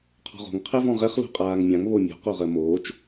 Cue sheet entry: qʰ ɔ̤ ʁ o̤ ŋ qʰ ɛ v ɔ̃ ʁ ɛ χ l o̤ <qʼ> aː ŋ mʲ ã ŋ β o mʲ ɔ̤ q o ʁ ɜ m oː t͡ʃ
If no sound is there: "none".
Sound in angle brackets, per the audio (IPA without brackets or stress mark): qʼ